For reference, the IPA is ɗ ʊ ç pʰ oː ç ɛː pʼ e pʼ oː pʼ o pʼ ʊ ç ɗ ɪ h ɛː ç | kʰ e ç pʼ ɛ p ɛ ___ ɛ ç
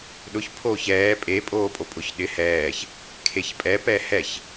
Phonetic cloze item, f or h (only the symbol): h